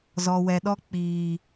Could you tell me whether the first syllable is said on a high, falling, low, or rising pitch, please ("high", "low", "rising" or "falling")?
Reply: low